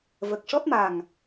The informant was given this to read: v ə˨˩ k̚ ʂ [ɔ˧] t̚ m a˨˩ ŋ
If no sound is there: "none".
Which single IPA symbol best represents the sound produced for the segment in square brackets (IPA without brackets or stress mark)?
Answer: ɔ˦˥